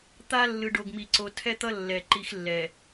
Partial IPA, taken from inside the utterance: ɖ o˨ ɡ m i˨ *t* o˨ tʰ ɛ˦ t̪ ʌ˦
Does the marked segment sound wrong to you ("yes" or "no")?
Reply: yes